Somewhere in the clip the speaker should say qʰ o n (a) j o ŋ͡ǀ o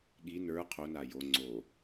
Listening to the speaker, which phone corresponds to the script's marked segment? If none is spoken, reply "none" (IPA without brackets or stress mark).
a